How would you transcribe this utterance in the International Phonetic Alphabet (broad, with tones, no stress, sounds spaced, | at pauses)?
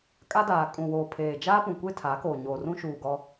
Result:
kʼ a˦ d aː˨ kʼ ũ˨ w oː˨ pʰ eː˨ d͡ʒ aː˦ p ũ˨ kʷ e˦ tʰ a˨˦ k oː˨ ɲ o˨ r ũ˦ ʃ uː˨ ɡ ɔ˦